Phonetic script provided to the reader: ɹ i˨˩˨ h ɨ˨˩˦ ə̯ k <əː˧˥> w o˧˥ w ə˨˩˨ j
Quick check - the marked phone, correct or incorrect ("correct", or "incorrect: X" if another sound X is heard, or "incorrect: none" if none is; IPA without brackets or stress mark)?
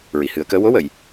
correct